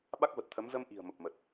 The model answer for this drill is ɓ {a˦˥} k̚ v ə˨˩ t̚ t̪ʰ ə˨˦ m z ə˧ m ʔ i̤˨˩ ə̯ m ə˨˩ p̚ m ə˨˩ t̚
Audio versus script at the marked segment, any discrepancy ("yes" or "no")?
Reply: no